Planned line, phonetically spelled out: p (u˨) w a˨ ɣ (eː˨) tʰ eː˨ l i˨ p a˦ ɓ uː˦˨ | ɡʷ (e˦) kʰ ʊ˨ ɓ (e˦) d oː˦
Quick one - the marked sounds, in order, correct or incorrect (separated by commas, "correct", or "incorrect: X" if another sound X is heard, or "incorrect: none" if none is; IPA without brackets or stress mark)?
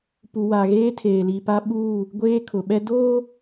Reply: correct, incorrect: eː˦, incorrect: eː˦, incorrect: ɛ˦